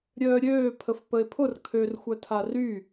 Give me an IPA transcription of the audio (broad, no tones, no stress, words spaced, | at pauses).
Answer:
ɾʲœːɾʲøːpʰəf pəe̯pʰʊr kʰør xʷœtʰary